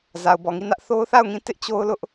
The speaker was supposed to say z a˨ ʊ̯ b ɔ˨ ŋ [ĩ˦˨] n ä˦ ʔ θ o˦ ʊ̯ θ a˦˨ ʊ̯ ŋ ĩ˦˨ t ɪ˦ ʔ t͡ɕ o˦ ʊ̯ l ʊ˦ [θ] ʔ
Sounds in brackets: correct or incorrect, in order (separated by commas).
incorrect, incorrect